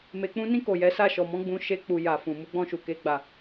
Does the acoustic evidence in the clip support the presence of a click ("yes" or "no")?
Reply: no